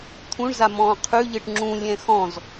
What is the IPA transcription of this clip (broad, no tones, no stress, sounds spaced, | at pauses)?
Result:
t̪ʰ ũ ɳ z a m ɔ̃ː qʰ ʉ ʎ ɨ ʈ ŋ͡ǁ ũ lʲ ɛ̃ x ɔ̃ z